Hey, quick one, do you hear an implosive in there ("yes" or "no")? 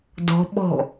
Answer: yes